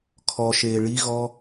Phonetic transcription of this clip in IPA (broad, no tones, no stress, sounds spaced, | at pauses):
kʰ ɔ ʃ eː ɭ i ɣ ɔ